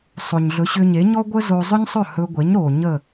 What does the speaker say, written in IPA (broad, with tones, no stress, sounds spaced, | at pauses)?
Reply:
sˤ o˩ ɲ ɮ ɵ˩˥ ɕ ʏ˧ ɲ e˩˥ ɲ ɔ˥ ɡʷ ə˥ z o˧ zˤ ɵ˥ ɲ sˤ ɵ˥˩ h ɵ˧ ɡʷ e˩˥ ɲ ɾ o˩ ɲ ə˥˩